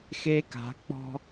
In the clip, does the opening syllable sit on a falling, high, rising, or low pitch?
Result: high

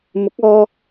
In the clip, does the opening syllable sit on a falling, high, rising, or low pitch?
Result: rising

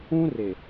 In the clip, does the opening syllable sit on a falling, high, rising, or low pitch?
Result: high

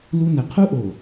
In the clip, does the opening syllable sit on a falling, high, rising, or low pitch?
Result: high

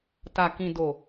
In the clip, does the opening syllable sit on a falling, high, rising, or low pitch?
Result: low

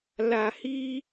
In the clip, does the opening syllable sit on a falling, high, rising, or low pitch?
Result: low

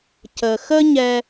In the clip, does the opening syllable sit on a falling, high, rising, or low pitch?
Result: low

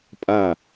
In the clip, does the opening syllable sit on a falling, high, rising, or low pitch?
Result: falling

